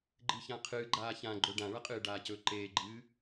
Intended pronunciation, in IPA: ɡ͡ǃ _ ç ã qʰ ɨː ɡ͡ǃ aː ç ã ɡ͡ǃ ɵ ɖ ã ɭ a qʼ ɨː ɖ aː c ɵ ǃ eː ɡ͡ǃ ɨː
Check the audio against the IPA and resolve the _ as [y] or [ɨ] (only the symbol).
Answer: ɨ